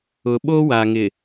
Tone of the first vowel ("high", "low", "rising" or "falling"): low